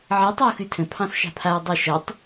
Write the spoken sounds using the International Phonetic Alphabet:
ʕ ə tˤ ɯ u̯ x ʉ tʰ ə̃ pʰ ɑ̃ s ʃ a̤ pʰ a y̯ dˤ ə ʃ ʌ tˤ

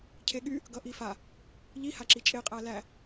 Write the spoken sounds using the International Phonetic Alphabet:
cʰ e ɠ y | ɡ ʌ ʔ i f a | ʎ i h a ǁ i t͡ʃʼ e qʼ æ l æ

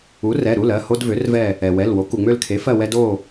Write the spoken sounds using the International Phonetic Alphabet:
u˩˥ r ɛ˩˧˩ ɾ u˩˧˩ l ɜ˩˧˩ h o˦ d v ø˩˥ r v ɛ˦˨ | ɛ˩ w ɛ˩˧˩ l w o˩˥ k u˩ ŋ͡m ø˦˨ l kʰ e˩˥ f ɜ˦˨ w ɛ˦ d o˦˨

